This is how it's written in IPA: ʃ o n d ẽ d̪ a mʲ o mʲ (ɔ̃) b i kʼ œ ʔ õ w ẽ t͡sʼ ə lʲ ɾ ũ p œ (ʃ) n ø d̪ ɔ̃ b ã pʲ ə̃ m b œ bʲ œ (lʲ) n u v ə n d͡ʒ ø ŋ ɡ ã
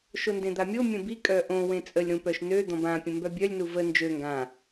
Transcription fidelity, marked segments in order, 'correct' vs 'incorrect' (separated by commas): incorrect, correct, correct